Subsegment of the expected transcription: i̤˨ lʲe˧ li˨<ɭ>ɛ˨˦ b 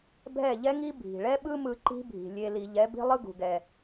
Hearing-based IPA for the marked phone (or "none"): ʎ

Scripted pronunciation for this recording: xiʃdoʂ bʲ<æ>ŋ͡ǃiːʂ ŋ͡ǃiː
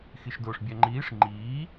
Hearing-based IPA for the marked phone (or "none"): æ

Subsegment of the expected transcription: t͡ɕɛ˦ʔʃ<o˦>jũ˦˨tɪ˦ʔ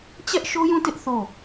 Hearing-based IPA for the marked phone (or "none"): o˦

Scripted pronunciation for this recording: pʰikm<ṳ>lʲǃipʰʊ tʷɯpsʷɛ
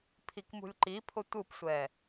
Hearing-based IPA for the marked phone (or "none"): ṳ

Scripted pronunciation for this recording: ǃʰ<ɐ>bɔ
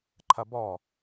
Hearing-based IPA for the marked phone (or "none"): ɐ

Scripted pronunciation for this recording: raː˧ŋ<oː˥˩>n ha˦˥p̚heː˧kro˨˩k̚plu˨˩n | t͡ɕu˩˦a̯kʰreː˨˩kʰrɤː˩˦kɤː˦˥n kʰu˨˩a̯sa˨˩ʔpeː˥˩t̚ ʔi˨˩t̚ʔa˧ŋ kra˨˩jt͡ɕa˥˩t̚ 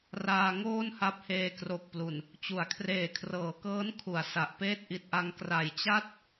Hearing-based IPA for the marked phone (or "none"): oː˥˩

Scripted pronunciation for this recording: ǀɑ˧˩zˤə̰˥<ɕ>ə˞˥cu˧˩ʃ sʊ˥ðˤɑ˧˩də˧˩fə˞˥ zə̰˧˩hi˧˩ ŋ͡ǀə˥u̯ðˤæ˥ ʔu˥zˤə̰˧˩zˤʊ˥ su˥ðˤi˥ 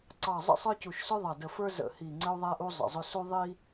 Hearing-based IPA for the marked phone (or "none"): sˤ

